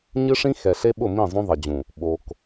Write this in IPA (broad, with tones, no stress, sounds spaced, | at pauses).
ɲ ɨ˦ ʂ ĩ˦ x ɛ˨ ɬ e˦ ɓ ʊ˦˨ m ĩ˦˨ zˤ ũ˦ ðˤ ɛ˨ d͡ʑ ũ˨ | ɓ o˨ k